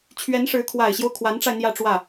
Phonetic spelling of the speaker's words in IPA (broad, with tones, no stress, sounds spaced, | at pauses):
t͡ɕʰ ɥ ɛ˧˥ n ʂ ɻ̩˧˥ kʰ w a˨˩ ɪ̯ ɕ j o˦ ʊ̯ kʰ w a˧˥ n ʈ͡ʂ a˧ ɪ̯ n̪ j ä˥˧ ʈ͡ʂ w ä˥˩